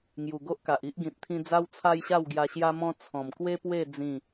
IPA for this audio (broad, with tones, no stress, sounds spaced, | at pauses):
ŋ j u˨˩ ɡ o˦ ʔ k a˨ ʔ i˦ ʔ ɡ ĩ˨ t̚ t̪ʰ ĩ˧ d͡z a˦ w t͡sʰ a˦ j ɕ a˥˧ w ɡ j a˧ ɕ j a˧ m ɔ̃˧ t͡sʰ ɔ̃˨˩ m k w e˦ p w e˥˧ d͡z ĩ˥˧